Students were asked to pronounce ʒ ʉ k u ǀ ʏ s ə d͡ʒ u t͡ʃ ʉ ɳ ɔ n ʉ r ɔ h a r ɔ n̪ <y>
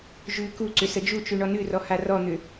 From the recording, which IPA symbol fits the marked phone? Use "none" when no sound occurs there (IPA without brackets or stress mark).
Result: ʏ